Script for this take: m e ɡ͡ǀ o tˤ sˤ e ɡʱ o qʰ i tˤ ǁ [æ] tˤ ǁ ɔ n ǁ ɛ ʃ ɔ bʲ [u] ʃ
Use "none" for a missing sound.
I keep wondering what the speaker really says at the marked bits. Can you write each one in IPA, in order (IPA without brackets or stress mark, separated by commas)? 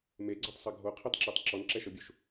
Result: ɛ, u